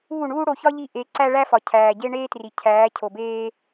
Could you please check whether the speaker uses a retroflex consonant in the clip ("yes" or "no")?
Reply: yes